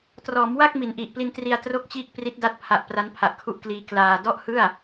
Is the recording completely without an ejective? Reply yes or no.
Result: yes